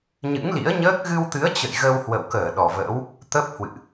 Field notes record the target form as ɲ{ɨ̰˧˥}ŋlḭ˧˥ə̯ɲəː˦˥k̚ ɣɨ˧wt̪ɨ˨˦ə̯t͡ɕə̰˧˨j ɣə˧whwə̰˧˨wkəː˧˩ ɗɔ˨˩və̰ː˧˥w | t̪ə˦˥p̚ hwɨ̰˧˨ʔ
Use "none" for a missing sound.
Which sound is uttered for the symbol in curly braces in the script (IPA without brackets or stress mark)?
ɨ̰˧˥